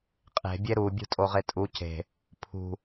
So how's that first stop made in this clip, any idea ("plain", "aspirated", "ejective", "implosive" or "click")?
ejective